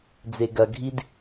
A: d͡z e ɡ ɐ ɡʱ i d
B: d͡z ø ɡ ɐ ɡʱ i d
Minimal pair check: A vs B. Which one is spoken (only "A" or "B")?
A